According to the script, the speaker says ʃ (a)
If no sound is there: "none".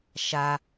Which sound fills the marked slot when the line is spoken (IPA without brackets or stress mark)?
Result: a